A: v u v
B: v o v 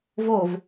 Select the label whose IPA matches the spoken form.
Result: B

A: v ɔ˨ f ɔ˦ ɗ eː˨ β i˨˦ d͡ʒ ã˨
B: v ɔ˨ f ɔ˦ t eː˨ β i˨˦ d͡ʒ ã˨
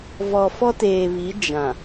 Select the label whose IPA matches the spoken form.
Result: B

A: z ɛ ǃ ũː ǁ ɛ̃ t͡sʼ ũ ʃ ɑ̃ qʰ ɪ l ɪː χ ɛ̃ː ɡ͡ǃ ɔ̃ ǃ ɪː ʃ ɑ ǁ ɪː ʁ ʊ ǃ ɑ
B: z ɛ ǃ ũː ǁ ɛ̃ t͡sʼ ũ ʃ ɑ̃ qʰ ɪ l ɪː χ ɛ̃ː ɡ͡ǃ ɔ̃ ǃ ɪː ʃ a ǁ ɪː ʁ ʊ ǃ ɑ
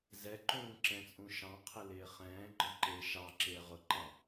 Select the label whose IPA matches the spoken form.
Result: A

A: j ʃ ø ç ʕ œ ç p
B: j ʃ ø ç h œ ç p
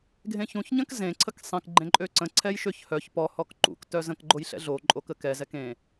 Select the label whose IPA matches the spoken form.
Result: B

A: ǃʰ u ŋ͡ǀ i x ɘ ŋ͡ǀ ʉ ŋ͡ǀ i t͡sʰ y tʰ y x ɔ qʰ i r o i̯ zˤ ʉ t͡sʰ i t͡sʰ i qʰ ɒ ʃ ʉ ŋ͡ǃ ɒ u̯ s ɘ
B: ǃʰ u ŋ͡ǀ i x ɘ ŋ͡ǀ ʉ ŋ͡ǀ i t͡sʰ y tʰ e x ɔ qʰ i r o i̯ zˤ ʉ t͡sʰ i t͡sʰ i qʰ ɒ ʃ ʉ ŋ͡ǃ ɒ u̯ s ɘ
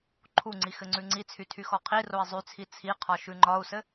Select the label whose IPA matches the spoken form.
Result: A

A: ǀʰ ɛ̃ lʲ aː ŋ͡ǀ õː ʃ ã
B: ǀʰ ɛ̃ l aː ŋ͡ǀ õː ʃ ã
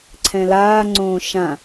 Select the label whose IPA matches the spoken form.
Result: B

